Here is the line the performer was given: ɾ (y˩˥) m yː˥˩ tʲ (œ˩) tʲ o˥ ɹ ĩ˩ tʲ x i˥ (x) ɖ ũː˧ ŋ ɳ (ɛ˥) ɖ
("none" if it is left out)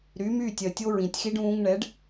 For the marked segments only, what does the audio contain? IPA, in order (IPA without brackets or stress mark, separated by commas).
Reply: y˩˥, œ˩, none, ɛ˩˥